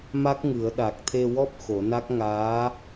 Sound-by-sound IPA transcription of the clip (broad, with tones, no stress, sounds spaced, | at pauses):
m a˦˥ k̚ ŋ ɨ˨˩˦ ə̯ ɗ a˨˩ k̚ t̪ʰ e˧ w ɔ˦˥ p̚ x o˨˩˦ n a˦˥ k̚ ŋ aː˧˥